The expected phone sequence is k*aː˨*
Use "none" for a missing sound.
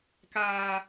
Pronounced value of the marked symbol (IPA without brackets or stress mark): aː˨